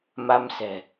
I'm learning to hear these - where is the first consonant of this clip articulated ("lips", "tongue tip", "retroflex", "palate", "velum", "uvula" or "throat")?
lips